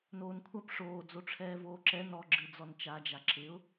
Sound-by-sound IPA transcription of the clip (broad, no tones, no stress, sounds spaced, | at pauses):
n oː n kʷʰ a p ʂ oː d͡z o ʈ͡ʂʰ ɛː v oː ǁ ɛ n ɔ ɡ͡ǁ ɨ d͡z ɔ n t͡ʃ a d͡ʒ a ǁ ɪ ʊ̯